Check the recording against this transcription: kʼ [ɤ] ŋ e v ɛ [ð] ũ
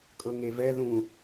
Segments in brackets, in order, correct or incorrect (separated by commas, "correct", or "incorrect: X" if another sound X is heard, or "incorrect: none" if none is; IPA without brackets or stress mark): correct, correct